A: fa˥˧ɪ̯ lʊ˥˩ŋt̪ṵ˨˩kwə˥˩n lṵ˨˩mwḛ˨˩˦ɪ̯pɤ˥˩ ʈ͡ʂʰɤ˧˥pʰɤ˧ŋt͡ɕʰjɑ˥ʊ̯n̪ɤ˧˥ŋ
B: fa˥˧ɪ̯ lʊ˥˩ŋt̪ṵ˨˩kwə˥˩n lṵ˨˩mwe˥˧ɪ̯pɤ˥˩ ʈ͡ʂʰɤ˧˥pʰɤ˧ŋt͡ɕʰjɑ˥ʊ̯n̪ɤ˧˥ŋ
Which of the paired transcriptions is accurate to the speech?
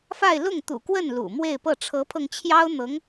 B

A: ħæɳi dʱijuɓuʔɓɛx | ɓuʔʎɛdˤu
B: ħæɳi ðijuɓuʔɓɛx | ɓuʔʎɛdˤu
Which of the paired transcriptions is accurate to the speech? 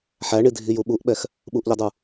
A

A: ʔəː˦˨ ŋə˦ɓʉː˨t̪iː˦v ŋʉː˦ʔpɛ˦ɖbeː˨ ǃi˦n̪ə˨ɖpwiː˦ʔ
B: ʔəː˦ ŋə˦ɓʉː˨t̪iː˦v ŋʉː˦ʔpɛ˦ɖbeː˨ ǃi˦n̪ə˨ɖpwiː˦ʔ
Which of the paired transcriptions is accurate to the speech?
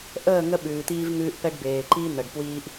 A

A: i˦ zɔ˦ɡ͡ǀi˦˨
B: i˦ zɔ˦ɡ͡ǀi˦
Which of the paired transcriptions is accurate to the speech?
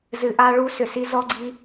B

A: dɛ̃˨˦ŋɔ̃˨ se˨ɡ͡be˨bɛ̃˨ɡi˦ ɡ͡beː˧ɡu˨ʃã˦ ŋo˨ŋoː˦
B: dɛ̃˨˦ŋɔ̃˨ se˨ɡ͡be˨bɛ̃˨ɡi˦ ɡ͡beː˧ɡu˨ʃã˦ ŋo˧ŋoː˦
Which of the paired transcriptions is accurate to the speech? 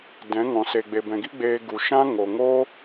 A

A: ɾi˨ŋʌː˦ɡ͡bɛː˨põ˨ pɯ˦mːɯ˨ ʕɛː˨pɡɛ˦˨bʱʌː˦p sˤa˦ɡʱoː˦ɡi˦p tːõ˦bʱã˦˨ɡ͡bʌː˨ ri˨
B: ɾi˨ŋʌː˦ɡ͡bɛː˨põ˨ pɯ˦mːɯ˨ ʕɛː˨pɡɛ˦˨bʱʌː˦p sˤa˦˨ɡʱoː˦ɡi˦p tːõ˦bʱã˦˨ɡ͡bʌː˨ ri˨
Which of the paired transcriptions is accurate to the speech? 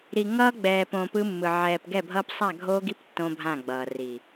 B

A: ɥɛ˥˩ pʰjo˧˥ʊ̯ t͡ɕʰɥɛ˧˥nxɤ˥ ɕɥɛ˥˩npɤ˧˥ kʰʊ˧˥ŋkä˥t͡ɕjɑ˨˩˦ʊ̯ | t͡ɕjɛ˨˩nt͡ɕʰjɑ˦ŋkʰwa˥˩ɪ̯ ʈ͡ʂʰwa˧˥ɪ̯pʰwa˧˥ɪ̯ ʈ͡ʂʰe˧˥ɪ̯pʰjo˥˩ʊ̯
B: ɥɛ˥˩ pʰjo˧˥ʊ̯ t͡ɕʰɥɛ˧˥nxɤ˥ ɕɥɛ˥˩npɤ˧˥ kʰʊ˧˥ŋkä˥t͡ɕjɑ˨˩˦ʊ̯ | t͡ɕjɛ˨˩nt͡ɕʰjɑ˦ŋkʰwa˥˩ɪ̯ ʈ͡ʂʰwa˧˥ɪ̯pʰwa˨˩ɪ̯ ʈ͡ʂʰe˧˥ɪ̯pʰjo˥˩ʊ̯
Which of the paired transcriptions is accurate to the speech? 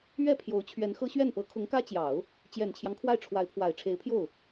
B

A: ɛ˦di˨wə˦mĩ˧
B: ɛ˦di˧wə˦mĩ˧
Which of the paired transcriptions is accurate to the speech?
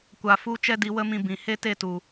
B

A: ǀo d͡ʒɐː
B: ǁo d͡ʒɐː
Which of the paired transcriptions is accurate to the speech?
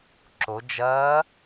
B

